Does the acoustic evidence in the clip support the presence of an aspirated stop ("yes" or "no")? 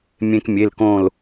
no